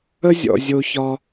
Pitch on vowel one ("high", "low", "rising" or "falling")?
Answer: high